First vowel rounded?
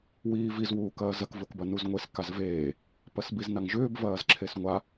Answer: no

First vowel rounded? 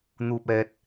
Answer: yes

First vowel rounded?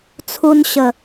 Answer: yes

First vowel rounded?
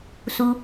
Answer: yes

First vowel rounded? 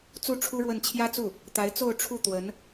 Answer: yes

